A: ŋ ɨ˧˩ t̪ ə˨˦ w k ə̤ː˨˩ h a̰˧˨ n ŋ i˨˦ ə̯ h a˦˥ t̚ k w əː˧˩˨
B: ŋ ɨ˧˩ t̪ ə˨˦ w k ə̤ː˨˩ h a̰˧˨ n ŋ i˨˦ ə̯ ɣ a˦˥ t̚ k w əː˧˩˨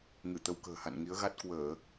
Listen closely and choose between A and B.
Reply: B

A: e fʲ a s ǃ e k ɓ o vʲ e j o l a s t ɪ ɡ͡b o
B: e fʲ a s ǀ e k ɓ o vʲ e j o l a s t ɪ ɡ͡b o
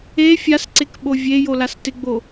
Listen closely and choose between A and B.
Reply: B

